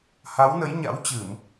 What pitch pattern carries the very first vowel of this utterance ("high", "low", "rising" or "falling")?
rising